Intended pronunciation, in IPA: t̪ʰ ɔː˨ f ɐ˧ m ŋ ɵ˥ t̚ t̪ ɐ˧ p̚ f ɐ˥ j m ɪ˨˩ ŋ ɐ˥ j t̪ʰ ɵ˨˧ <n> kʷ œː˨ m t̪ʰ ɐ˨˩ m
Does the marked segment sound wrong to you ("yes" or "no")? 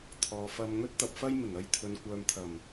no